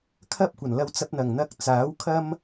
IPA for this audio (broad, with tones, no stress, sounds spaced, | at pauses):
kʰ ɐ˥ p̚ kʷ ɐ˨˩ n l ɐ˧ w t͡s ɐ˧ p̚ n̪ ɐ˨˩ ŋ n̪ ɐ˧ k̚ t͡s aː˨˥ w kʰ ɐ˥ m